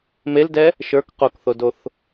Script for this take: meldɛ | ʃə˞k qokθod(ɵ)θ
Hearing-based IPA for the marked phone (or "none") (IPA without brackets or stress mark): o